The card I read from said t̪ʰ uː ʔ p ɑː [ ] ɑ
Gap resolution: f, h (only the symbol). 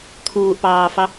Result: f